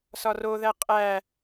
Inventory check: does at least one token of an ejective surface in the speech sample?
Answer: yes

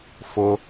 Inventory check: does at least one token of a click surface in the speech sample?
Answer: no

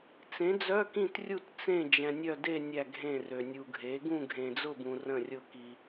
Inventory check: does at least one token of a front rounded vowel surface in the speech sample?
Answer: yes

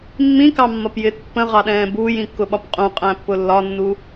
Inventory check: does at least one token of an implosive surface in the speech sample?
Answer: yes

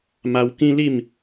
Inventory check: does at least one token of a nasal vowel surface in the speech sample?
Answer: yes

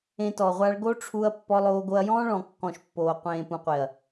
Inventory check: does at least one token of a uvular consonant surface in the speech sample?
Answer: yes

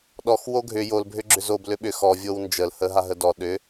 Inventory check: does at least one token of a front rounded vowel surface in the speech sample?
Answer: yes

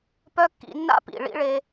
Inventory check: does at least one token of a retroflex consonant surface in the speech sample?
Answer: yes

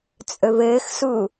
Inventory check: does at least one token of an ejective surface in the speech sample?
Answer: yes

